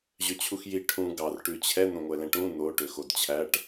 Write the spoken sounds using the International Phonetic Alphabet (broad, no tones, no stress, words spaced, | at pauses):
ʑøt͡ɕʰuxji ʈʰũ ɡɑr ʈʉt͡ɕʰɛ n̪õŋʷɛlɛ̃ʈũ n̪o ʈøxodt͡ɕʰæʈ